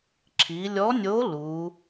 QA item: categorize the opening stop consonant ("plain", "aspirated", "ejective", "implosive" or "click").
click